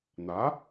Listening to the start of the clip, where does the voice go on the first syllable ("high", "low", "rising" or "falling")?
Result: rising